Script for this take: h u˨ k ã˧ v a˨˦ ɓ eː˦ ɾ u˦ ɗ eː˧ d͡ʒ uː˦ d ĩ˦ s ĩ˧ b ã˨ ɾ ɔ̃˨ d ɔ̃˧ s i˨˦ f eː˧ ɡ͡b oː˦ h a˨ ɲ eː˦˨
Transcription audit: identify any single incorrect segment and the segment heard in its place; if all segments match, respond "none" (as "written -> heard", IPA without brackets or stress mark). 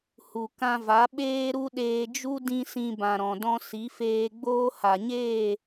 uː˦ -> u˦